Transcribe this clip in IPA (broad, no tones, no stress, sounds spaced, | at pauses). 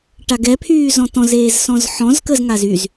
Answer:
ʈ a ɡ ɛ pʰ yː z ɔ̃ t ɔ̃ z eː z s ɔ̃ z ħ ɔ̃ z k ə z ŋ a z y z